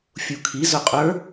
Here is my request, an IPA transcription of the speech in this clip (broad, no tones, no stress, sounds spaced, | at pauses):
fʲ u kʰ i z ʊ qʼ ə˞